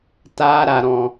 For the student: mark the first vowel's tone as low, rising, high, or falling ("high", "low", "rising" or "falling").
high